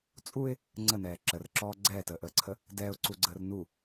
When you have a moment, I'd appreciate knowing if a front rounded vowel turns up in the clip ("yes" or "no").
no